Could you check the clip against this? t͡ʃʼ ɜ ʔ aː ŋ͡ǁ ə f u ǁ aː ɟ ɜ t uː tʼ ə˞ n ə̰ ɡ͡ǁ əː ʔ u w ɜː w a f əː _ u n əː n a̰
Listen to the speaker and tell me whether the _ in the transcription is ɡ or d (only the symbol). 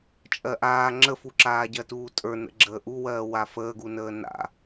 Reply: ɡ